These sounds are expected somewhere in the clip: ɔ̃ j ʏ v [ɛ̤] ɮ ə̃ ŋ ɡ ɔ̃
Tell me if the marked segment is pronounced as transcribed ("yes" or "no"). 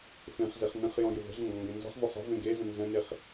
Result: no